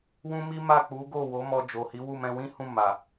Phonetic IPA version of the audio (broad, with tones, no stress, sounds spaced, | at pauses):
w ũ˦ m i˦ m a˦˨ k͡p u˨˦ ɡ o˦˨ w o˨˦ m ɔ˧ d͡ʒ o˨ h i˨˦ w u˦˨ m ɛ̃˧ w ĩ˦ h ũ˦˨ m a˨